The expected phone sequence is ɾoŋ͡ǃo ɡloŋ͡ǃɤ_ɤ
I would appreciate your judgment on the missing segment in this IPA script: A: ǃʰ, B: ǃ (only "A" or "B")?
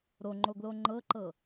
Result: B